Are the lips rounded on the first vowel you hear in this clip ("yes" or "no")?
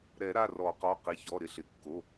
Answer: no